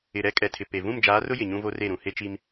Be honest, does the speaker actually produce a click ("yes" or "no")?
no